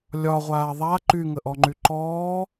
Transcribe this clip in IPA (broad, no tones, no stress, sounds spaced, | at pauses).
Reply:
lʲ ɒ ʁʷ aː ðˤ a ǃ y ŋ ə ʔ ɔ ŋ͡ǃ y ǃ ɔː